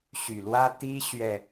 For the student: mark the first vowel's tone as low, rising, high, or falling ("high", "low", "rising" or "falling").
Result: low